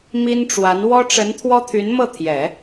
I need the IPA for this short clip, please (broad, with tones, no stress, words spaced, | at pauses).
mi˥nʈ͡ʂwa˧˥n wɔ˥ʈ͡ʂə˧˥n t̪ʰwɔ˥t̪ʰy˧˥nmɤ˥˩t̪ʰjɛ˨˩˦